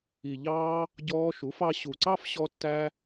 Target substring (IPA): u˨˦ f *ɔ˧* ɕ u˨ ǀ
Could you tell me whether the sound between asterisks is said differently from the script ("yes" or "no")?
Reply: yes